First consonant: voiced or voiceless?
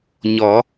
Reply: voiced